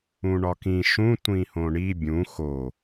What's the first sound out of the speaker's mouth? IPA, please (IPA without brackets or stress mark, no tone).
ũ